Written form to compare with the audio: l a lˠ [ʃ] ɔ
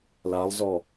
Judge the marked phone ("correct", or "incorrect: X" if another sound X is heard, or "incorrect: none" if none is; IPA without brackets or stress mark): incorrect: z